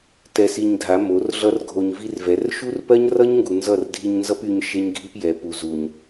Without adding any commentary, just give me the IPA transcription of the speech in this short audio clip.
tɛ˧si˧ɲdʱa˨˦ mo˨˦rɮʌ˦rɡʱo˧ɲ vi˦rvɛ˨˦r ʃu˦rpɜ˦ɲrʌ˦ɲŋɡu˨ nzʌ˦˨rdʱi˧ɲnzʌ˦py˧ɲ ʃe˦ɲɡʱi˦pjɛ˨ pu˨zu˨ɲ

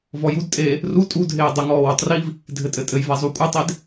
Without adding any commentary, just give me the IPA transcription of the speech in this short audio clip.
vɔjudtʼeː | ru tʼudʱeː dˤɘŋɔː wutˤriv | dʱɘtʼɘtʼɘjva zˤukʷʼɘtˤed

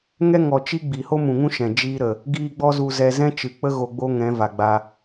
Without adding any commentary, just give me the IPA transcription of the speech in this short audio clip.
ŋɛ˦ŋɔ˨ t͡ʃi˦ɡ͡bi˨ ho˦mũ˨ŋũ˦ ʃɛ̃˨d͡ʒiː˦ɾə˨ | ɡiː˦ ɡ͡bɔ˦zu˧zɛ˧ zɛ̃˦t͡ʃɨ˨k͡pə˦ ɣo˧ɡ͡bo˦ŋɛ̃˨˦ va˨ɡ͡ba˧

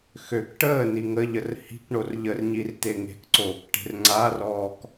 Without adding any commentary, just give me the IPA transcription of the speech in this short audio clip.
xøk ʈəː niŋəʎər hi̤k ɳorʎərɲir t̪eŋe̤kǀoːk ʈe̤rŋ͡ǀarɔːk

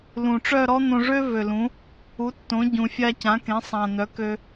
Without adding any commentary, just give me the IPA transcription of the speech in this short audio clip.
lũ˨˩ʈ͡ʂœ˥˨ɾɔ˥ n̪õ˧ʐø˥ vø˨˩lũ˩˥ | u˩˥tːõ˩˥ɟũ˨˩ fʲa˧cã˩˥kẽ˩˥sˤã˨˩ n̪œ˩˥kø˧

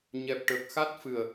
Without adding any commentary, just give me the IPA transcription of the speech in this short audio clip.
ɲɛ˨˩p̚ʈə˨˩k̚xa˦˥t̚fɨ˨˩ə̯

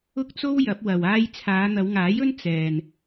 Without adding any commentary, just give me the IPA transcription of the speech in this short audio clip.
ʊ˥k̚t͡so˥w jɐ˨˥p̚wɐ˨waː˥j t͡sʰaː˨˧n̪ɐ˨˧wŋaː˨˥jɵ˥n t͡sɛː˨n

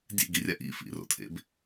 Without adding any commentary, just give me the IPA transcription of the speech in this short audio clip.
dʲḛɡirʲa ʔḭfḭro̰tʰḛb

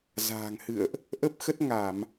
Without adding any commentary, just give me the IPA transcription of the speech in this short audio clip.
za̤ː˨˩ŋhɨ̰˧˨ə̯ʔ | ʔə˦˥p̚xə˦˥t̚ŋa˧˩˨m

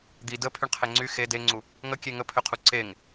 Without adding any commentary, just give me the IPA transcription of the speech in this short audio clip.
d̪i də pʰyɳqʰeŋ͡ǀy xe deŋ͡ǀu | ŋəkʲe ŋəpʰøqʰu ǀeŋ

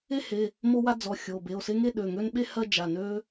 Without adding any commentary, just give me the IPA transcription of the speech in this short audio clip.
e˥he˩˧˩ | mo˥wa˥d͡zɔ˩˧˩xʲo˩˧˩ be˩˧˩o̯se˥ ŋe˥ɗø˩˧˩ŋø˥nɓe˥ hɜ˥d͡ʒa˩˧˩nø˥

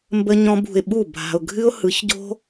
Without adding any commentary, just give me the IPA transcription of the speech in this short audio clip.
mbə˦ɲɔ̃˦bṳ˧ɪ̯ ɓu˦˨bʱa̤˧ʊ̯ ɡʱɨ˦ʊ̯hɯ˨˦çɟo̤˦

